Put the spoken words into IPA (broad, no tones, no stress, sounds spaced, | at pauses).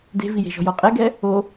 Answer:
d e̤ v i j e̤ ʒ ɔ̤ j ɔ qʼ ɛ ɡ ɛ | o